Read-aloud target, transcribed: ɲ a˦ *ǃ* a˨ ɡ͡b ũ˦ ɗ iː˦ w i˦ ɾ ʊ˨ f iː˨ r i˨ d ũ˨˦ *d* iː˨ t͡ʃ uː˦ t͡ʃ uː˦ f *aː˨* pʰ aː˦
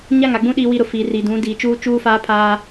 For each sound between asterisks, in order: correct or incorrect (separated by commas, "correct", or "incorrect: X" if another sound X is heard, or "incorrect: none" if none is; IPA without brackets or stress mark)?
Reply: incorrect: ŋ, correct, incorrect: aː˦